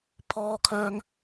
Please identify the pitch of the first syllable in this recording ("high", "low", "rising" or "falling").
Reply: high